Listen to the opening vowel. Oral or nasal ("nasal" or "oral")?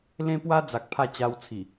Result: nasal